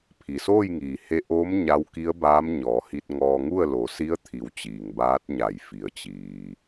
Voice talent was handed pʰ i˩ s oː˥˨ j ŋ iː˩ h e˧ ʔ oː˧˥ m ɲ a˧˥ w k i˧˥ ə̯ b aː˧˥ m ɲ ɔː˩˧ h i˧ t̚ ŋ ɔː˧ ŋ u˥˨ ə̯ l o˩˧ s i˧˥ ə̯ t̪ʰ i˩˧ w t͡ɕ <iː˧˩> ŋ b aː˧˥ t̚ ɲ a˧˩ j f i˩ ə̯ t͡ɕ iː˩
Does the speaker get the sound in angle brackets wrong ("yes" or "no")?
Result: yes